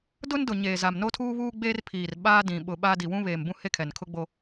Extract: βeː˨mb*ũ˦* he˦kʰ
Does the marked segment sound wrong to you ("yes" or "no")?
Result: no